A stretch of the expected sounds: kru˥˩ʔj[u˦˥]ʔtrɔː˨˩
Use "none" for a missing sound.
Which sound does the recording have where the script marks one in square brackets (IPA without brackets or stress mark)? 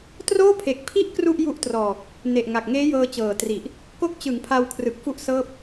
u˦˥